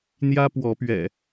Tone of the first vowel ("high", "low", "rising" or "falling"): high